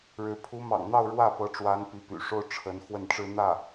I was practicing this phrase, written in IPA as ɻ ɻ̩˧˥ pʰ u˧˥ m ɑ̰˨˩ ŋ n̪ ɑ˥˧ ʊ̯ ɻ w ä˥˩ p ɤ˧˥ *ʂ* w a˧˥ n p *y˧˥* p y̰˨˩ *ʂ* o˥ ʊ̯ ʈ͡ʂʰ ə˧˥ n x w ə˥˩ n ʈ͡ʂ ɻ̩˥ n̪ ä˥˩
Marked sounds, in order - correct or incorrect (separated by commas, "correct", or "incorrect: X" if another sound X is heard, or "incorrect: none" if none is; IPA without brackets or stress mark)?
incorrect: ʈ͡ʂ, incorrect: i˧˥, correct